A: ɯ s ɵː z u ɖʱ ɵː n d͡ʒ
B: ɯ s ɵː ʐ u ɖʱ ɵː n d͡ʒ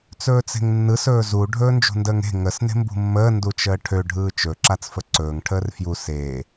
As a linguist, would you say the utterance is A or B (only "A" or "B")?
A